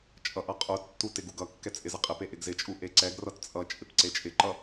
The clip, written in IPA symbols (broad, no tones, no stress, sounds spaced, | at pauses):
t͡ʃʼ ʌ ʔ ʌ qʼ u tː u t ɪ ɡ u ɡ ʌ kː ɛ t͡sʼ ɪ z ɪ qʼ ɪ p e ʔ ɪ ɡ z ɪ t͡ʃʼ u ʔ e ǀ ɛ ɡ r ʌ t t͡sʼ ʌ t͡ʃʼ ɪ p ǀ e t͡ʃʼ ɪ ǃ ʌ